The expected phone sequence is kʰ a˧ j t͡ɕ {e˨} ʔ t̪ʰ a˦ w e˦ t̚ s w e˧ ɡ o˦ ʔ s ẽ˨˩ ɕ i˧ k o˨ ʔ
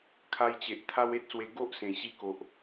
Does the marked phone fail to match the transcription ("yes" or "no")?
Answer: no